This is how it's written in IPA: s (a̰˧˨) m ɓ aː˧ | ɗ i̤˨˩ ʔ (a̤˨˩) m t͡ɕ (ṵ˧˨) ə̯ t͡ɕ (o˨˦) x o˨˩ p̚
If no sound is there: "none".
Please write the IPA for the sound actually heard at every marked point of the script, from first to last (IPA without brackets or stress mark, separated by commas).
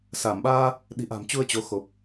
a˧˩, a̤˨˩, u˧, o˨˦